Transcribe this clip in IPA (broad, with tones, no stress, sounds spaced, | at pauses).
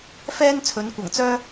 f ɛː˥ n t͡sʰ ɵ˨˧ n kʷ ɐ˨˩ ŋ t͡s œː˥